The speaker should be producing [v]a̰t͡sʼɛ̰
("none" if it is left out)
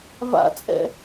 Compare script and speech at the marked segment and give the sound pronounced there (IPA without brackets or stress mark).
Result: v